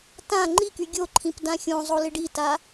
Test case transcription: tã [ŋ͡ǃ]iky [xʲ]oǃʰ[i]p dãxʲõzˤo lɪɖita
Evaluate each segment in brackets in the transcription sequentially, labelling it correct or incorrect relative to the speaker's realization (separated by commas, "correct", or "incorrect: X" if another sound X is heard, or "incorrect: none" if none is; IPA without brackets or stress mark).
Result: correct, incorrect: ɡʲ, incorrect: ĩ